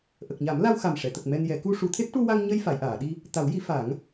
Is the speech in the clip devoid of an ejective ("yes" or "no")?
yes